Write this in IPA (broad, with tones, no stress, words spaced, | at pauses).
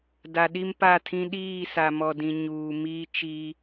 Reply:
da˨ɗi˦mpa˦˨tʰĩ˦ ɗiː˦˨sa˨mɔ˨dĩ˨ ɲuː˨miː˦t͡ʃi˦